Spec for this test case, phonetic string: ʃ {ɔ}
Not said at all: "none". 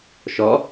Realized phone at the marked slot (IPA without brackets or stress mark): ɔ